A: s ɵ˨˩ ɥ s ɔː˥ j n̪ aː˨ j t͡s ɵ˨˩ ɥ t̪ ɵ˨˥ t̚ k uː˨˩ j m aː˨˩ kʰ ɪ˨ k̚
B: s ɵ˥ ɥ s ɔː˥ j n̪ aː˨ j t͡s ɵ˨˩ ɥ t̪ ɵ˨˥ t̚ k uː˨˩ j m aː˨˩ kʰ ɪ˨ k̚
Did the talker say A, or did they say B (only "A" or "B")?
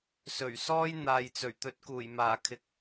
A